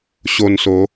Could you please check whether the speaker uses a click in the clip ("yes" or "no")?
no